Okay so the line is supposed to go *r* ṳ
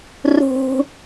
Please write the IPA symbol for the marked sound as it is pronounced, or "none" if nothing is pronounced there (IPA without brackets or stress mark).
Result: r